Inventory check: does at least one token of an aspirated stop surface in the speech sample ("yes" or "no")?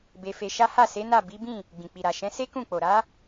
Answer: no